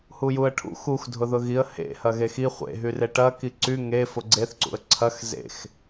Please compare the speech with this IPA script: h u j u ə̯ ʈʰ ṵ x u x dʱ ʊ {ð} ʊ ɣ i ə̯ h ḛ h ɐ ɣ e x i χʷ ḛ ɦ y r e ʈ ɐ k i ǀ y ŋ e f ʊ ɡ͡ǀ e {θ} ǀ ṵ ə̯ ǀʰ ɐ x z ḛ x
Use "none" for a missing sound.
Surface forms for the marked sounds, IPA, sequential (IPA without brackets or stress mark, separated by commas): ð, θ